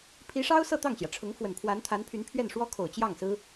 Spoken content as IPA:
pʰ i˧˥ ʂ ɑ˥ ʊ̯ s ɤ˥˧ t̪ ɑ˥˩ ŋ ɕ j ä˩ ʈ͡ʂʰ ʊ˧˥ ŋ f w ə˨˩ n pʰ w a˧˥ n t̪ʰ a˧˥ n pʰ y˧˥ n pʰ ɥ ɛ˥˩ n ʂ w ɔ˥ kʰ o˨˩ ʊ̯ t͡ɕ j ɑ˥˩ ŋ s ɹ̩˥

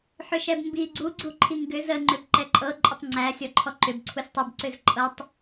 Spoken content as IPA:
ħ ʏ ʃ ɛ b m b i ɡ͡ǀ u ɡ͡ǀ u ǃʰ i ŋ ɡ ʏ z ə ŋ͡ǃ ʏ b ǃ ɛ ǃʼ ɤ ǃʼ ʏ tˤ ŋ͡ǀ æ sʲ ɔ ǃʰ ɔ ǃ ʏ b ǀʰ u sʲ tˤ ə b ǀ ʏ z ǃʼ ɤ tˤ

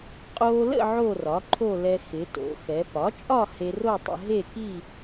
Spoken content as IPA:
qʼ oː˧ l ə̰˥˧ ʕ o˥˧ r ɒ˩˥ ǃʰ o˥˧ l ɛ˧ x ɪ˩˧ t o̰˩˧ x ɛ˩˧ p ɒ˩˥ t͡ʃʼ ɒ˥˧ h e˧ r o˥˧ tˤ ə̰˧ ɦ e˥˧ k i˥˧

